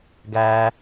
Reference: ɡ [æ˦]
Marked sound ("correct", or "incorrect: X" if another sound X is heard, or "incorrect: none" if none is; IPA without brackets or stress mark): correct